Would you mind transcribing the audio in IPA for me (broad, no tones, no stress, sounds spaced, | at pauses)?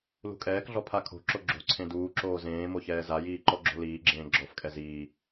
l ṳ kʼ ɛː k ɮ ɔ pʰ a kʰ o̤ ǁ o ɡ͡ǁ o̤ ǀʰ ẽ d uː ǁ oː z ẽː m o ç ɛː z a j iː ǃ ɔ ɡ͡ǁ o̤ l iː ɡ͡ǁ ẽː ɡ͡ǁ ɔ f kʼ ɛ z iː